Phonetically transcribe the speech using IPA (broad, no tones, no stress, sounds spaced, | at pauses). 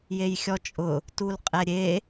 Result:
j e j xʲ ɔ t͡ʃʼ ʊ | t u l qʼ ɛ ɾʲ e